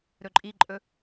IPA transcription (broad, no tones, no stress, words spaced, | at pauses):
ɾɵǃʼiǃʼɵ